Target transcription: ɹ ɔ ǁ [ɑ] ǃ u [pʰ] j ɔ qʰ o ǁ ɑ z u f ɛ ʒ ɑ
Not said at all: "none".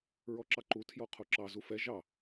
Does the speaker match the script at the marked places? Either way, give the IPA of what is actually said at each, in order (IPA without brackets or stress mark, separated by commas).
ɑ, tʰ